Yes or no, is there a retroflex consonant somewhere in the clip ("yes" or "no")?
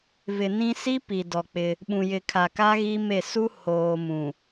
no